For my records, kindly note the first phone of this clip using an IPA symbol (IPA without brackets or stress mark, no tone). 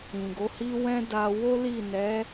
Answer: ĩ